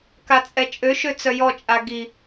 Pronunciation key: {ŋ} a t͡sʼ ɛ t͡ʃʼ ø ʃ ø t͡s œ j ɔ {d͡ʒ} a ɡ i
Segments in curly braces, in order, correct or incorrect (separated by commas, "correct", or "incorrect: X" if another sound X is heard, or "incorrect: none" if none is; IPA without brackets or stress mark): incorrect: k, incorrect: t͡ʃʼ